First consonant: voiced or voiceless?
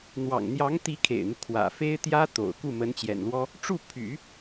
voiced